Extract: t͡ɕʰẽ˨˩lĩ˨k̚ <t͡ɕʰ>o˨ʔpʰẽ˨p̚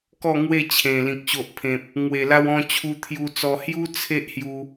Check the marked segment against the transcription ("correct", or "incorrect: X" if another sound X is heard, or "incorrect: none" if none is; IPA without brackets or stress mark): incorrect: ɕ